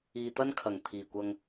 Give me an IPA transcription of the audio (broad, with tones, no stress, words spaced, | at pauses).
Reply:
iː˨t̪ɐ˥n kʰɐ˨˩ŋ t̪ʰiː˨˩kʷɐ˧ŋ